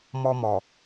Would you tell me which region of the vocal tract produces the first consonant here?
lips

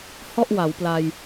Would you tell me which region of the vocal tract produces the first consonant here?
throat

